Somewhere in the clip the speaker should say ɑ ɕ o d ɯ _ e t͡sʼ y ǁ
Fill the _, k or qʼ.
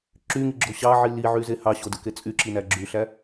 k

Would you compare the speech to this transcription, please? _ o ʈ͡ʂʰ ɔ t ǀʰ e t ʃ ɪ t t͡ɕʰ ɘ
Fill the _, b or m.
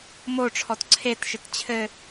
m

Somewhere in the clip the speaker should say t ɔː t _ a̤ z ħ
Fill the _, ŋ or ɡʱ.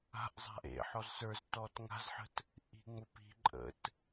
ŋ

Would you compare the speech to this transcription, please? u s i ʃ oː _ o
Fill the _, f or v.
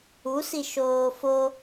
f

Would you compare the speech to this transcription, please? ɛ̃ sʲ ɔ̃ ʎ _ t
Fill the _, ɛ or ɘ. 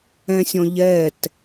ɛ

